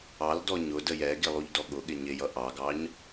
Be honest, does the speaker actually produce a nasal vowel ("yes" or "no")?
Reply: no